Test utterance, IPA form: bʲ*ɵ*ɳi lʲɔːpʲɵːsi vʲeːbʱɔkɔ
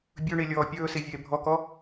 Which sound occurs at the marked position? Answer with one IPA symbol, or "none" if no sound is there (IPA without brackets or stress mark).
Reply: ɵ